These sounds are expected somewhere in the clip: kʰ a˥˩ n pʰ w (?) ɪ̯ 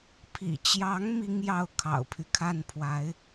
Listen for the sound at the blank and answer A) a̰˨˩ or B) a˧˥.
B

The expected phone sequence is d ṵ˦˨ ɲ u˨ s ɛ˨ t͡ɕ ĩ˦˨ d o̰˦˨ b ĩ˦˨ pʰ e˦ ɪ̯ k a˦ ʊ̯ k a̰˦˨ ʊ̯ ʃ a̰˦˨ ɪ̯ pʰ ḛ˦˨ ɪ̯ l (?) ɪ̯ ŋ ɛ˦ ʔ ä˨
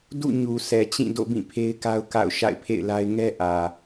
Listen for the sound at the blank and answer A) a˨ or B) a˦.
B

